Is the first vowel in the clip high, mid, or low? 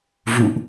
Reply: high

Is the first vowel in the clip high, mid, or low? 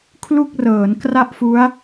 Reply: high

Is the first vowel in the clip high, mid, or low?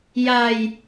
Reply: low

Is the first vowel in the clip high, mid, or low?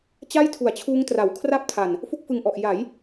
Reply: low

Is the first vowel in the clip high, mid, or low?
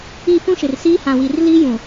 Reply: high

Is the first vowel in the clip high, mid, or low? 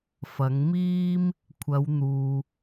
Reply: low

